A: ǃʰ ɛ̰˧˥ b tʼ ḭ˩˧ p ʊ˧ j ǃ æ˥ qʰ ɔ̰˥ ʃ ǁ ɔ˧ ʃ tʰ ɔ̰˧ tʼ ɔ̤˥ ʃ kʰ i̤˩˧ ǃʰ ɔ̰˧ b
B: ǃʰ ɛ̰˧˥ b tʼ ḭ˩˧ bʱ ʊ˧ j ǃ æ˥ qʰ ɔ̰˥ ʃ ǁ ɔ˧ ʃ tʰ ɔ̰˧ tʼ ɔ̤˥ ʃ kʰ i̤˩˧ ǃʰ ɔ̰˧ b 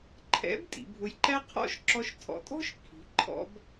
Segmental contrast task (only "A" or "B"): B